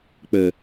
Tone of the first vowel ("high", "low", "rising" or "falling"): low